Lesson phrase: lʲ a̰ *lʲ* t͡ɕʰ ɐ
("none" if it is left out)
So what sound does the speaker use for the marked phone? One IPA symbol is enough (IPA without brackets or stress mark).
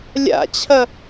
none